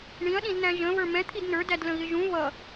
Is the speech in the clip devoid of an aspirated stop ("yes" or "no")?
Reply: no